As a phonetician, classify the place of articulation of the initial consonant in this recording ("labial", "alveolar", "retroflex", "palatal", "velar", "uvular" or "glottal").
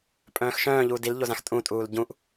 labial